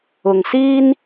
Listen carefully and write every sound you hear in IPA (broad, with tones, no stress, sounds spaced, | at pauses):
ʊ˨ ŋ s iː˥ n